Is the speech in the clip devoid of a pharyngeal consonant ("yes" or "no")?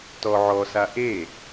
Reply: no